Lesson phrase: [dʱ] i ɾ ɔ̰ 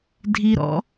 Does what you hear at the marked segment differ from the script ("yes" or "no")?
no